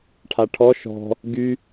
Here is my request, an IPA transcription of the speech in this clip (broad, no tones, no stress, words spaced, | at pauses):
ʈʰaʈʰɔ ʃɔ̤ | ɡy